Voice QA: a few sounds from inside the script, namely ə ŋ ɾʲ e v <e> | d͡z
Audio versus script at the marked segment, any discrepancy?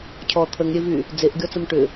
yes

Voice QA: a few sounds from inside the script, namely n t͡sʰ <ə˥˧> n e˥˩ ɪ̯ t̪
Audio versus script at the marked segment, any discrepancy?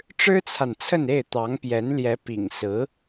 no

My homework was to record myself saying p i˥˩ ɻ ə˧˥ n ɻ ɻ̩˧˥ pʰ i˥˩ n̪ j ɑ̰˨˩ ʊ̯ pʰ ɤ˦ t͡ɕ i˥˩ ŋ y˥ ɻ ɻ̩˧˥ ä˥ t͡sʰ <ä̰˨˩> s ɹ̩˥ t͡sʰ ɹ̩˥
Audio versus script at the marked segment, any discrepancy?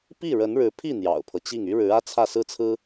yes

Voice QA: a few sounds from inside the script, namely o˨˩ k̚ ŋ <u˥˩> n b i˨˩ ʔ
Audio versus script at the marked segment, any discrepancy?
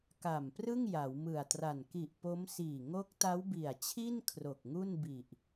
no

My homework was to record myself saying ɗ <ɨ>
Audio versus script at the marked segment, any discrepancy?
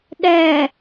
yes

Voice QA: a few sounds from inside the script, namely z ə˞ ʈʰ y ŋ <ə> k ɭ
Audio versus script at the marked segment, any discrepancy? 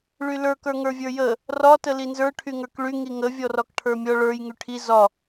yes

